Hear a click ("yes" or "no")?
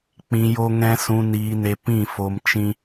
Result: no